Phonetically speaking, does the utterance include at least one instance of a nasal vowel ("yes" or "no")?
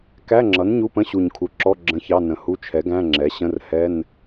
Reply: yes